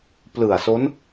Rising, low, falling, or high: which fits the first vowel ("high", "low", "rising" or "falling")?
low